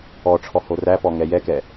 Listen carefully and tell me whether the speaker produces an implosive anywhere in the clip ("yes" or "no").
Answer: no